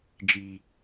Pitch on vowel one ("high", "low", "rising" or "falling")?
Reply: low